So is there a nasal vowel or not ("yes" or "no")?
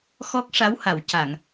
no